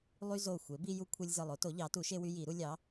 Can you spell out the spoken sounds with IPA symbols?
lˠ y˦ z o˧˩ xʷ e˩˥ b i˦ j u˦ kʷʰ e˦ lʲ z ɯ˧˩ lˠ o˩˥ t o˩˥ ʎ ɑ˩˥ t u˩˥ ʃ e˦ w y˦ j i˨˩˦ ɾ u˦ lʲ ɑ˩˥

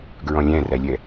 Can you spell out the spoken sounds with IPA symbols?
ɡ ɹ ɔ̃ lʲ æ̃ r æ lʲ ɛ

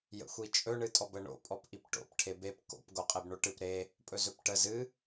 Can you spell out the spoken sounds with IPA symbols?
j ə̰ xʷ i t͡ʃʼ ɵ ɳ ɨ tʼ ɔ b ə ɳ o̰ pʼ ɔ p ʔ i p ʈ o̰ p ʈʰ e b e p k o̰ p ɡ o qʼ e b ɳ o ʈ ɨ p ɾ e | pʼ ɵ z ɵ p ʈ ə z ɨ

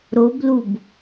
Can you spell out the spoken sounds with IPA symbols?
ɾ o b l u b

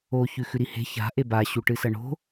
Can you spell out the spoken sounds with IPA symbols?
o ç ʉ x ʉ ɾ i h e̤ ç a̤ ʔ e b a ɕ u ʈ ɨ s ɐ ɳ o̤

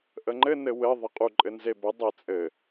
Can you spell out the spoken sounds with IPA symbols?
ʔ ə ŋ͡ǃ ɘ n ɘ w ɘ ðˤ ə qʼ u ǃʼ ɘ n z e b ə dˤ e t͡sʼ ɘ

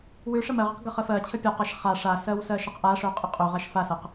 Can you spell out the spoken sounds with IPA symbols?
w ʉ ʂ ə m ɜ ʁ ə q ɡ ə χ ə f ɜ t͡ɕʰ ə pʲ ɒ q a ʃ χ a ʂ a s ɜ w s ɜ ʃ ə q ʔ a ʂ ø qʼ ə qʼ ø ʁ a ʃ f a s ɜ q

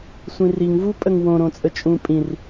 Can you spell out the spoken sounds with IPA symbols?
sʷ ĩ r i ŋ v u pʼ ə ŋ w õ ɾ õ t͡sʼ ə t͡ʃʼ ũ pʼ ĩ r

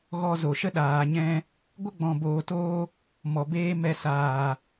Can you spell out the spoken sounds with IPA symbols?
ɣ ɔ˧ z o˨ ʃ ə˦ ɗ aː˨ ɲ ɛ̃˧ | ɡʷ ə˦ ɡ͡b ɔ̃˨ b oː˨ t oː˧ | m ɔ˨ b eː˦ m ɛ˧ s aː˨

